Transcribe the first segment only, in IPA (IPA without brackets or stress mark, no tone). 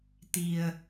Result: t̪